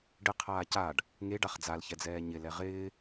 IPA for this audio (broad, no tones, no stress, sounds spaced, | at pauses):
ɖ ɪ qʰ aː c a ɖ | ŋ e ɖ a χ d͡z a l ç ɛ d͡z ɛː ɲ ɪ l ɛ ʁ ɪː